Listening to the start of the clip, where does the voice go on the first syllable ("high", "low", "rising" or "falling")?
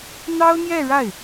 high